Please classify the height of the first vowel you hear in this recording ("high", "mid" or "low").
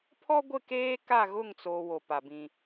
mid